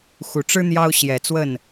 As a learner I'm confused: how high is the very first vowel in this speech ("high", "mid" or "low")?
high